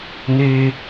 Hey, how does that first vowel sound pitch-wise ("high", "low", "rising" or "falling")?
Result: high